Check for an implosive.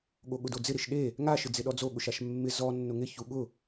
present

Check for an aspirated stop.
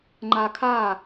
present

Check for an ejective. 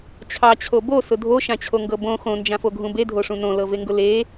absent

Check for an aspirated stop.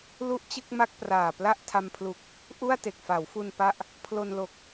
present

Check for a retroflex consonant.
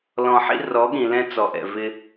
absent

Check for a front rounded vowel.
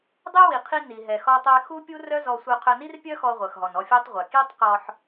present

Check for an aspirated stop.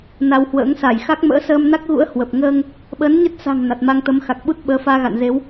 absent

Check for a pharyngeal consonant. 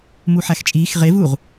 present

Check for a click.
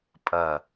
absent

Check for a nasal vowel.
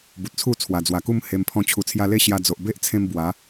present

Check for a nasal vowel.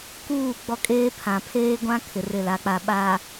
present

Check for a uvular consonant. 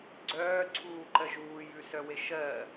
absent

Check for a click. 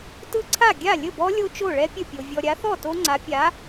present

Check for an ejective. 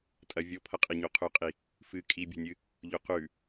present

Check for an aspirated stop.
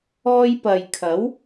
present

